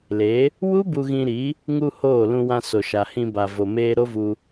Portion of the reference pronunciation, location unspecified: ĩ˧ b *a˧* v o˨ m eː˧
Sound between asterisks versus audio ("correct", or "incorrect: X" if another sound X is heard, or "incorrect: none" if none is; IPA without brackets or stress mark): incorrect: a˨